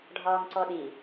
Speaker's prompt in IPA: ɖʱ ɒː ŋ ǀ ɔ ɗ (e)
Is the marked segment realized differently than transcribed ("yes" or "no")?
yes